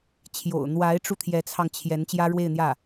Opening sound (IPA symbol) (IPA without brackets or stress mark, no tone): t͡ɕʰ